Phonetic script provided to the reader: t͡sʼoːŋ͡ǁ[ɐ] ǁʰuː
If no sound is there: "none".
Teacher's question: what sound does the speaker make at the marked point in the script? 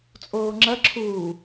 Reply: ɐ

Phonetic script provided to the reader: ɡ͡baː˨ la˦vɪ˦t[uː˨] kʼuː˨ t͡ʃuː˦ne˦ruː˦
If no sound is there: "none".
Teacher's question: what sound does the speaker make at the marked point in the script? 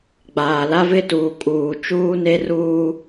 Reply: uː˨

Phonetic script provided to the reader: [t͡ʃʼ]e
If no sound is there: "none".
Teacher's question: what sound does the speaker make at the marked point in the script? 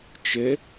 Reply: t͡ʃ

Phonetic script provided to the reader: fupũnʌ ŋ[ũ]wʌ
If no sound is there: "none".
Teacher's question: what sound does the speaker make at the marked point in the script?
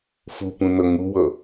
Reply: u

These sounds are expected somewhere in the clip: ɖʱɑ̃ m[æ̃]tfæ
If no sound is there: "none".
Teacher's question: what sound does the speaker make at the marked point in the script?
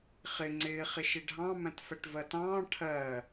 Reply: æ̃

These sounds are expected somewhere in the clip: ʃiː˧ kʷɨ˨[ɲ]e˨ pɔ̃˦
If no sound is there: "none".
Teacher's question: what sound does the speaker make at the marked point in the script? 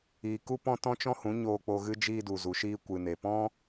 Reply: n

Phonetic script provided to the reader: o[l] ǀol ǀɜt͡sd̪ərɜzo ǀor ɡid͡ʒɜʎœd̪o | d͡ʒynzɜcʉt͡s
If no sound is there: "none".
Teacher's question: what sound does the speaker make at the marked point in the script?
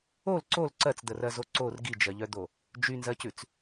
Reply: l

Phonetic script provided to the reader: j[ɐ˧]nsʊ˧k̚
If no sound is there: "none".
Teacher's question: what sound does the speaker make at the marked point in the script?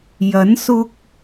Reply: ɐ˨˥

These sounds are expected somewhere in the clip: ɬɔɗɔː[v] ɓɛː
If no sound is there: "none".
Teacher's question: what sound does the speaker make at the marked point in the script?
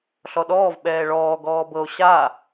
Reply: v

